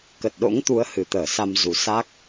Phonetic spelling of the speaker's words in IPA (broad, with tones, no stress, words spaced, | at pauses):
kə˨˩t̚ɗo̰˧˥ŋt̪u˨˦ə̯ hɨ˨˩t̪əː˧˩sa˧m zu˨˩sa˦˥k̚